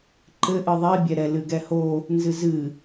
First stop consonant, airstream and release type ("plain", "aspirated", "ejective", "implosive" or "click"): click